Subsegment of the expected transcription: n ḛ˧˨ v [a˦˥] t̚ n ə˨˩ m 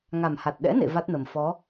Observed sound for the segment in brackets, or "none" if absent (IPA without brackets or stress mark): a˦˥